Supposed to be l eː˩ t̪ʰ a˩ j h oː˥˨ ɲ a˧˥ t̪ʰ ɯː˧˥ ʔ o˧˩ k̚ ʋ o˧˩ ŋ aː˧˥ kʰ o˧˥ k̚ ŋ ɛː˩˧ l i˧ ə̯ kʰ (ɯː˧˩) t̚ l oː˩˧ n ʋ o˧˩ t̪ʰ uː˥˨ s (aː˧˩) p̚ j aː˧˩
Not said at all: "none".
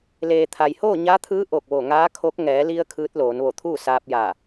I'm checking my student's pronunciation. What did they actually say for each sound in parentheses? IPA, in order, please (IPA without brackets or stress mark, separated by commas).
ɯː˧˥, aː˧